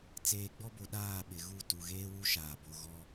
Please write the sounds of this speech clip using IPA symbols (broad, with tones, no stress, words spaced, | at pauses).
t͡seː˨ɡ͡bɔ˦bo˨ ɗaː˦˨ɓɪ˨ɣu˦˨ tu˨ɣeː˦wu˦ ʃaː˨ bo˨ ɣɔ˦